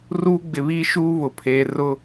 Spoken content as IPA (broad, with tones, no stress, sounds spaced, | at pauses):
r uː˦ ɡ͡b ɪ˨ β iː˦ ʃ uː˦ β ʊ˨ pʰ eː˨ r ʊ˦